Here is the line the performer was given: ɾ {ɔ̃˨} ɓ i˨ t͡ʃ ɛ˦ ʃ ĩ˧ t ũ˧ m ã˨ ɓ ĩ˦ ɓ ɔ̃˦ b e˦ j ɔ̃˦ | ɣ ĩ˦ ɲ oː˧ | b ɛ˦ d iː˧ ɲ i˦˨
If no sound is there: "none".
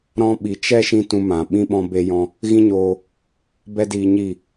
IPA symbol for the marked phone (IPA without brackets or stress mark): ɔ̃˧